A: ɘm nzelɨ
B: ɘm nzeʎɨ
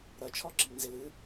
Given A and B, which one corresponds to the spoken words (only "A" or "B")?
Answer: A